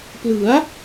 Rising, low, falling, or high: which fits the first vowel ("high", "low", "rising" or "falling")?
rising